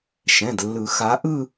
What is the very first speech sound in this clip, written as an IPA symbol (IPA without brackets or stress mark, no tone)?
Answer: ʃ